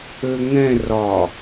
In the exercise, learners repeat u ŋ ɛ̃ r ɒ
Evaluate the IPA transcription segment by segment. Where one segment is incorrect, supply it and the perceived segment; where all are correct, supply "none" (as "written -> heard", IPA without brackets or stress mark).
u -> ø